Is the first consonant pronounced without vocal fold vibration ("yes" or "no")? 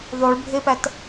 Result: no